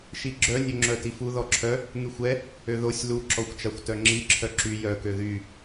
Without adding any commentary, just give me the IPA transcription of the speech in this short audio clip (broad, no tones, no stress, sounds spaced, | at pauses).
ʃ i ɡ͡ǁ œ nʲ ø ŋ͡ǁ œ t i f u ð ɔ ǁʰ œ | ŋ y xʷ ɛ | ø ð o sʲ l u ǁ ɔ xʷ t͡ʃ a xʷ t œ ŋ͡ǁ i ǁʰ œ ǁ y j œ k ø ð y